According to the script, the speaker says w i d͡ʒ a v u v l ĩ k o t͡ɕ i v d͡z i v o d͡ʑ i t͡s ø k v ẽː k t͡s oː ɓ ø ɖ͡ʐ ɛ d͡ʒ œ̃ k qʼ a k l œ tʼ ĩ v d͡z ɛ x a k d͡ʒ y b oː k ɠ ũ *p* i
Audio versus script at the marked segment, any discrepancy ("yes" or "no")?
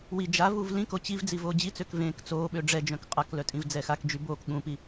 no